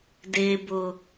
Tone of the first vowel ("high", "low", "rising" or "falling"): low